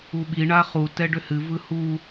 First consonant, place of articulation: labial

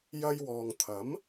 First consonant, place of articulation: palatal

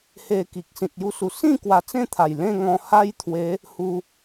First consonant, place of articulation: glottal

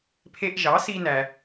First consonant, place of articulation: labial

